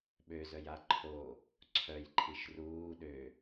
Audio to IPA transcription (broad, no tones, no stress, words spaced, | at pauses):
ɓøzœja ǃʰo | ǀʰœjǃʰiʃ ruː ɗø